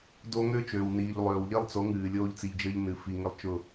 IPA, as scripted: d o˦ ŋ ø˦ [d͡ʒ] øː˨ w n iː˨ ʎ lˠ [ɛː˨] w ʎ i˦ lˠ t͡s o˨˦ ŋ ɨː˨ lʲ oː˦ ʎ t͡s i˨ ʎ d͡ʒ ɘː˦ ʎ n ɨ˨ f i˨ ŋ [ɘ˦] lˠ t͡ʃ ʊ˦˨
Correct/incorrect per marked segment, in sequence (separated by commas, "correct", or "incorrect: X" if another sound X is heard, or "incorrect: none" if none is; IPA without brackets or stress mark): incorrect: t͡ʃ, incorrect: øː˨, correct